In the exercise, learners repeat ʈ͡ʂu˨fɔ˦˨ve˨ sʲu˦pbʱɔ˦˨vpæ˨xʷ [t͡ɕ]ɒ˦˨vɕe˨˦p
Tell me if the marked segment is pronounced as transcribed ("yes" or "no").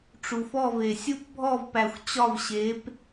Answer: yes